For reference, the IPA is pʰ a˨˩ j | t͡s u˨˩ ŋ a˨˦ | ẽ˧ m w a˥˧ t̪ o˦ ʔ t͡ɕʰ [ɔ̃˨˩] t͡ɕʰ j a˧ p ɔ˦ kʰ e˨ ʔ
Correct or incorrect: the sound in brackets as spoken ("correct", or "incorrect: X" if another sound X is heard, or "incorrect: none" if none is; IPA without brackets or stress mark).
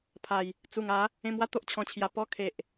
incorrect: ɔ̃˧